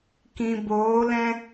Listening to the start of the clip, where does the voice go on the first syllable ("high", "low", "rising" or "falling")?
low